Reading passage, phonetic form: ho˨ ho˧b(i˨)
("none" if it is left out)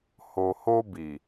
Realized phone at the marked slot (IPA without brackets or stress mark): i˨